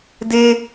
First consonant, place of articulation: alveolar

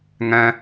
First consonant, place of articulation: velar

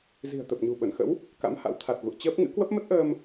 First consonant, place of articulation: alveolar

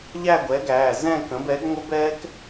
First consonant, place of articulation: palatal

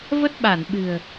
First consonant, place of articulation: labial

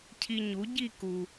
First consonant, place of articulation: palatal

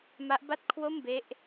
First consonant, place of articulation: labial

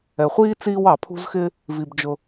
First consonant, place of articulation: uvular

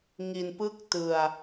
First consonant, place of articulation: velar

